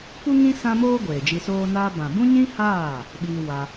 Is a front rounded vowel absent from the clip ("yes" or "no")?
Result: yes